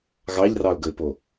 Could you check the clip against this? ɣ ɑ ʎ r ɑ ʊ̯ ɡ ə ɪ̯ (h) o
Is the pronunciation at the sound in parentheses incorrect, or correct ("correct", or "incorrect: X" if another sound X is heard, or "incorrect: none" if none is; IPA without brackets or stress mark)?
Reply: incorrect: p